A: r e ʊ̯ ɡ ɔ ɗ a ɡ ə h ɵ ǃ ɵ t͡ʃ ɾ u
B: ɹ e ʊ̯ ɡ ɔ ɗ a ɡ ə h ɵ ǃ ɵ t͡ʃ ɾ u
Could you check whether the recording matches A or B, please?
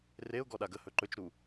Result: A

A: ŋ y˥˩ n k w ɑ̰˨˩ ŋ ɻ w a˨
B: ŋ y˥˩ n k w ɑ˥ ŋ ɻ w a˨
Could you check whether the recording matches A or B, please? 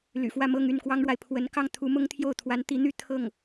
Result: B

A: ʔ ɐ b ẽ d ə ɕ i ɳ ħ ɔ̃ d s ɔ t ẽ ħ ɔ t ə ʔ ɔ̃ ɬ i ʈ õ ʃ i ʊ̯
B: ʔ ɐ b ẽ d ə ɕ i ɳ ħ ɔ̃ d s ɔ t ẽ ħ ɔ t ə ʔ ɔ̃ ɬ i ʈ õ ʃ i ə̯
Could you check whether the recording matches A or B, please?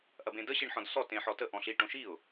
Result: A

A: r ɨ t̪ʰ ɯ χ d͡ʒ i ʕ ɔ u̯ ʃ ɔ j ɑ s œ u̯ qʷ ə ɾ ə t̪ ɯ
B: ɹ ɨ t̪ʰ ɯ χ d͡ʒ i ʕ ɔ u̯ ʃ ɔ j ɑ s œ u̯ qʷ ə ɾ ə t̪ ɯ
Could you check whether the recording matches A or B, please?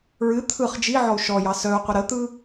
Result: B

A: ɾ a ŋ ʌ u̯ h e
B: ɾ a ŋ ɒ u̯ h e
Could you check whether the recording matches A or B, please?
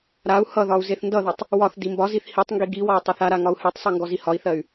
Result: B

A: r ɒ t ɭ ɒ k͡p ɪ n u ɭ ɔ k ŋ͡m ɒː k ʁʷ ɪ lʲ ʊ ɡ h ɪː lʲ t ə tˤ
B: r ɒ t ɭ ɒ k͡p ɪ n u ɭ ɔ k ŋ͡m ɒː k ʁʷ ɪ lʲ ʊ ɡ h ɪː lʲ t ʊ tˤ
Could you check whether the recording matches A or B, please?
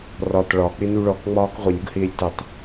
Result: A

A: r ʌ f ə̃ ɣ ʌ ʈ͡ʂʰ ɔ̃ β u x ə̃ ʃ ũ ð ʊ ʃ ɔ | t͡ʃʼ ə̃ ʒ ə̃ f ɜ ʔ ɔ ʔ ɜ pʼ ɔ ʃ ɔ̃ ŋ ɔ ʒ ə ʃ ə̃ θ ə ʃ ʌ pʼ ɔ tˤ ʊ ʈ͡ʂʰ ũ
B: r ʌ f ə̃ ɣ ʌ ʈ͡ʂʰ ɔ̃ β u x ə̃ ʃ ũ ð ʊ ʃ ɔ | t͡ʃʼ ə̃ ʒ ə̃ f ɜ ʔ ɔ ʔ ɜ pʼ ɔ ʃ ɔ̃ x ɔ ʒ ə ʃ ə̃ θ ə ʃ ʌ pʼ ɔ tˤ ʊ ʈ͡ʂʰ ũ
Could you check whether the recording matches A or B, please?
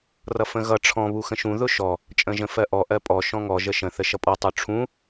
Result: A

